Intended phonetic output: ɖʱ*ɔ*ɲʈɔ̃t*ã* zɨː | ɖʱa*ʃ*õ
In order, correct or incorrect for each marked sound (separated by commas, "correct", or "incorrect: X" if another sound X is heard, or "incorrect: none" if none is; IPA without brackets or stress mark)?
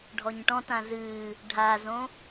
correct, correct, incorrect: z